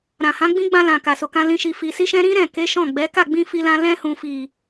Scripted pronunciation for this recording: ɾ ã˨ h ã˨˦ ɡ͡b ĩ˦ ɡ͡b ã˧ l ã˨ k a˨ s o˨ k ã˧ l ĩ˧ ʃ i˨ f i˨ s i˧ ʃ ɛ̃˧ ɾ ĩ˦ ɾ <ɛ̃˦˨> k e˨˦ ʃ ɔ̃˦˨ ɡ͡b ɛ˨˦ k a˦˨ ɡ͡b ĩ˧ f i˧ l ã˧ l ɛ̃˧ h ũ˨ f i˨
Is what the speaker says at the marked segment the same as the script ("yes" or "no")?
yes